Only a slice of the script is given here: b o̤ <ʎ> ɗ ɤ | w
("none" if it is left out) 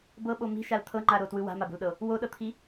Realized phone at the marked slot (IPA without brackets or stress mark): l